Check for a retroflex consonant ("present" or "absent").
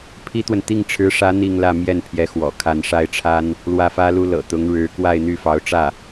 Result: present